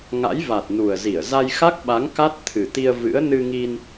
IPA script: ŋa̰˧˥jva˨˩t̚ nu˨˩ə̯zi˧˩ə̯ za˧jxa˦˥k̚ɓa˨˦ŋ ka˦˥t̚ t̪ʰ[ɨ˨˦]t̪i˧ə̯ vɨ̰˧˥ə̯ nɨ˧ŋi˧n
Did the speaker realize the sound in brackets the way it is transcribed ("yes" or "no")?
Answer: no